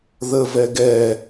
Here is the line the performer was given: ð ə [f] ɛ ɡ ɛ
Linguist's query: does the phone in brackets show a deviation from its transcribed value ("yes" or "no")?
yes